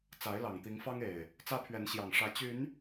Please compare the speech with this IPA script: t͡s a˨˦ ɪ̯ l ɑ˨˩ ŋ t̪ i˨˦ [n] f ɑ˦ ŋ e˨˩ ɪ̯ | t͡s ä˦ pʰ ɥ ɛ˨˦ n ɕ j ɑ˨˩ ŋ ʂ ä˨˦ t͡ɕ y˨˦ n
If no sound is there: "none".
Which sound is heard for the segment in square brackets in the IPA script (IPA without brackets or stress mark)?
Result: ŋ